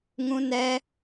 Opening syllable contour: high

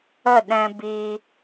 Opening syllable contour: falling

